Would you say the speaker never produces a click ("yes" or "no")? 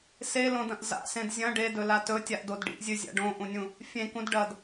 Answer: yes